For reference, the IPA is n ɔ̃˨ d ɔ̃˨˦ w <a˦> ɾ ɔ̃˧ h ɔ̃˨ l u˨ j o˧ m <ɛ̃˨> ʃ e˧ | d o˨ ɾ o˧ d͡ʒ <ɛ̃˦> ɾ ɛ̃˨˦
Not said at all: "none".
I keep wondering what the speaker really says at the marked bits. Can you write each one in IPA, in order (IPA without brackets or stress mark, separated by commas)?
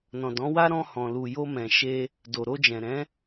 a˦, ɛ̃˨, ɛ̃˨